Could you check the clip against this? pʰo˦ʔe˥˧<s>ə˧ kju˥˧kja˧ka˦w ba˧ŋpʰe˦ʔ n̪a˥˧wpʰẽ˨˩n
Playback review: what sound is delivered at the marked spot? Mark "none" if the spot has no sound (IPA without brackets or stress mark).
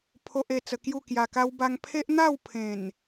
t͡s